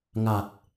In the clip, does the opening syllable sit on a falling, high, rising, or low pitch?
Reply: low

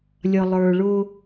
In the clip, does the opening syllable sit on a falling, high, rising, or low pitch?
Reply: low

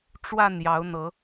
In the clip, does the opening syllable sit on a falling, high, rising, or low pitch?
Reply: falling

